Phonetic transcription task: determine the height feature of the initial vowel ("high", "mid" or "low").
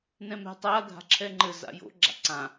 mid